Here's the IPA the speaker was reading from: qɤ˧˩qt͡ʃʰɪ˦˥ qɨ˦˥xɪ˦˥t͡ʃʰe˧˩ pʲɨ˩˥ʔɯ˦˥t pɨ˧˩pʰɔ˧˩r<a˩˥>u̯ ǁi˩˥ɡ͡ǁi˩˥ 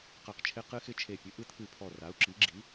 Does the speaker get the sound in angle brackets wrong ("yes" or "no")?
no